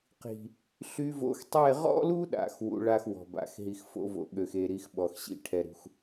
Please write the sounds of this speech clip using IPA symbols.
q i̤˨ | ɬ y˧ v o̰˧ x tˤ e˦˨ ʁ ɔ̰˦ l u˦ ɗ a̰˨ x w ṵ˧ ɭ a˦ x w ɔ̤˨ b a̰˨˦ x ɦ i˧ x f o̰˧ v o̰˨ ɠ ø˨ x e˨ ɾ i˧ x ɓ ɔ˨ x ɕ ḭ˦ ʈʰ ɛ˧ ɾ ṳ˧ x

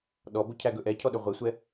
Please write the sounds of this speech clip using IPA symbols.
ɗ ɔ b o cʰ æ ɡ ɵ ʔ ɛ cʰ ɔ ɗ ɵ ʁʷ e sʷ ɛ

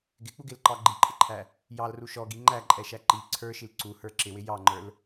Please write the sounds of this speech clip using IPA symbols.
ɡ ɪ k͡p u ɡ ɪ l ǃ ɑ ɡ͡ǃ i ǃʼ ɪ ǃʰ æ | j ɑ l r u ʃ ɔ ɡ i ŋ͡ǃ æ ǃʼ ɛ ʃ æ ǃ i ǀʰ ə˞ ʃ i l ǀ u h ə˞ ǁ ɪ w ɪ j ɑ ŋ͡ǃ ə˞ l

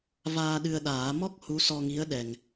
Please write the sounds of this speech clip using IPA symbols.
v aː˧ ɗ ɨ˧ ə̯ ɗ aː˨˩˦ m ɔ˦˥ k̚ h u˧˥ s ɔ˧ ŋ i˧˥ ə̯ ɗ ɛ˨˩ ŋ

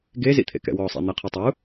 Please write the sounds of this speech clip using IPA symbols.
ɡ e z ḭ t̪ʰ ḛ k ɛ̰ w ɔ sˤ ḛ n̪ e qʰ i tˤ u

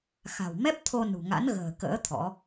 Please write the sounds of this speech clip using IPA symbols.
x a̤˨˩ w m ɛ˦˥ p̚ t̪ʰ o˧ n ṳ˨˩ ŋ a̰˧˥ n ɣ ə̤ː˨˩ k ə̰ː˧˥ t̪ʰ ɔ̰˧˥

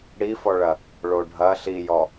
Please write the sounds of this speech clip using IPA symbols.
ɽ i f ɔ ɭ ɐ | ɭ o ɖʱ ɐ ɬ i j ɔ

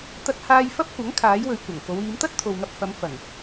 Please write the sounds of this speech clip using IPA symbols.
t̪ ɐ˧ t̚ h aː˧ j f ɐ˥ p̚ kʷ ɐ˨˥ ŋ kʰ aː˨˥ j w ɵ˨˧ ɥ kʷ ɐ˨˩ ŋ k o˨˧ w iː˨˧ m t̪ ɐ˥ t̚ t̪ʰ o˨ w ŋ ɐ˧ p̚ f ɐ˨˧ m f ɐ˨˩ ŋ

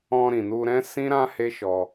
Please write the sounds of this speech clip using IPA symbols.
ɔ̃˧ ɾ ĩ˨ n u˧ ɾ ɛ̃˦ s ĩ˦ ɾ ã˦ h e˦ ʃ ɔ˧

